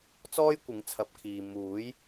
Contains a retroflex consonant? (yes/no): no